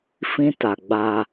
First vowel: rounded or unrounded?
unrounded